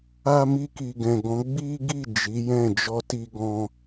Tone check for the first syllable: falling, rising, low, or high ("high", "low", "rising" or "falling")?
high